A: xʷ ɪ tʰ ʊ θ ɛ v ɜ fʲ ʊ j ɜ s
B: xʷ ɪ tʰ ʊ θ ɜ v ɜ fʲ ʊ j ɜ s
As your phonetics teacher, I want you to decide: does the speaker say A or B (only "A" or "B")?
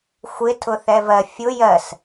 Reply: A